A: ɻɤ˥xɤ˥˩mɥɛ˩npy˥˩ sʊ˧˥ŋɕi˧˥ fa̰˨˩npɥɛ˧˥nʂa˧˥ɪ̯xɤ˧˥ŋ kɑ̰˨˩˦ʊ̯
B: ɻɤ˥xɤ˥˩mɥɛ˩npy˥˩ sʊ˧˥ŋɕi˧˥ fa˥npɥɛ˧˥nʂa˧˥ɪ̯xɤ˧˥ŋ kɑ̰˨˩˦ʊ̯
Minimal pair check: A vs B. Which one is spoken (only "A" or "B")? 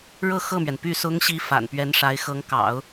A